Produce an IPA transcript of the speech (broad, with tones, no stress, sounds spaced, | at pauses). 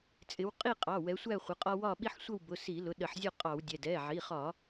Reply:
t͡sʼ ɪ˨˦ w qʼ i˥˨ qʼ ɑ˩˧˩ w ɛ˨˦ sʷ æ˥˨ χʷ ə˩˧˩ qʼ ɒ˦ w ɒ˥˨ ɓ i˦ ħ sʷ ə˥˨ w b ʊ˩˧˩ s i˧˩˧ l ʊ˩˧˩ ɗ ə˧˩˧ ħ zʲ ɔ˥˨ qʼ ɑ˧˩˧ w dʲ ɛ˩˧˩ d ɛ˩˧˩ ʕ i˩˧˩ χ ɒ˧˩˧